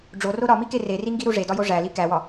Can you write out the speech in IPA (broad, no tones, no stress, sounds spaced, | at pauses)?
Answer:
ɖ͡ʐ o r o ɾ ɒ m i k e r e r i ŋ ɡ i ɾ u ʐ e d ɒ j o ʐ æ l i k æ w ɒ